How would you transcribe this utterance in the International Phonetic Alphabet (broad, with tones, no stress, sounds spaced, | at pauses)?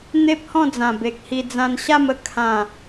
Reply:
n̪ e˦ p̚ h ɔ̃˥˧ d͡z ã˨˩ b e˨ k̚ h i˧ d͡z ã˧ n ɕ a˥˧ m ə˨˩ kʰ ã˨˩